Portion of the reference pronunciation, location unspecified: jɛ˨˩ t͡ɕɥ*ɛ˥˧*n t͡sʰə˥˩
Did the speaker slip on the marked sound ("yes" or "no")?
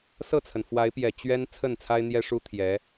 yes